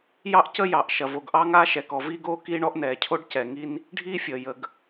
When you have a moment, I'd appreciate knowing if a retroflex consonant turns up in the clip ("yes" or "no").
yes